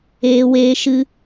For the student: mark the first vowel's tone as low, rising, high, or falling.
low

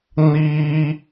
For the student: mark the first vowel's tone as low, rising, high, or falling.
high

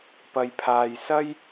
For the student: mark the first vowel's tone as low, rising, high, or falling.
low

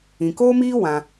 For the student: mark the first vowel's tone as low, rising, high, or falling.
low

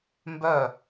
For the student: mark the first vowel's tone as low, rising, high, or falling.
falling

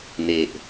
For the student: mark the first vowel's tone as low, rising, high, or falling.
low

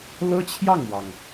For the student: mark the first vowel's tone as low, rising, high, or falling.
high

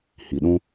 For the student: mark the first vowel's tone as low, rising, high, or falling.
low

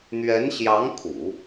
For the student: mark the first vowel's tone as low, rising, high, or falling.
rising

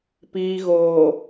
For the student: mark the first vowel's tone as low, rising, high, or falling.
low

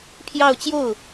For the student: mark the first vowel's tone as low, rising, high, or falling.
falling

